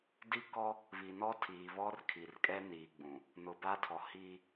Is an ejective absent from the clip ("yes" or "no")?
no